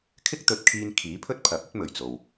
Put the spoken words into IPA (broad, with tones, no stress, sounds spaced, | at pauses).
kʰ ɪ˥ k̚ t̪ ɵ˨ t̚ kʰ iː˧ n kʰ iː˨˥ pʰ ɵ˥ t̚ pʰ ɐ˨˥ p̚ ɵ˥ t̚ m ɵ˨˩ ɥ t͡s o˨ w